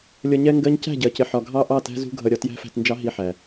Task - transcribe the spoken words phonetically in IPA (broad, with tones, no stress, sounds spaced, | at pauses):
lʲ ʌ˧ ɲ ɛ˦ ŋ ɡ ɜ˦ ɲ c æ̤˦˨ ɟ ɜ˨ c ɪ˨ ħ ɒ˨ ɡʱ ɑ˦ ʔ ɑ˦˨ t æ̤˦ z ṳ˦ ɡʱ ʌ˧ ɾʲ ɒ˧ t j æ̤˦ f æ̤˧ t n d͡ʒ ɑ˦ ɦ i˧ ħ æ˨